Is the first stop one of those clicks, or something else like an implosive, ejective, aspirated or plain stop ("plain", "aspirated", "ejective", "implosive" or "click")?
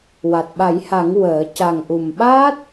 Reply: plain